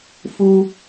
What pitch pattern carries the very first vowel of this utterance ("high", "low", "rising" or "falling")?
high